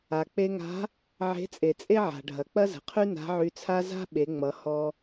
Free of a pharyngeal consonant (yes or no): no